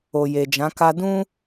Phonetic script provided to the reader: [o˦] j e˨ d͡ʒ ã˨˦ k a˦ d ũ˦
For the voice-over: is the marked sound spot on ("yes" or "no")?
no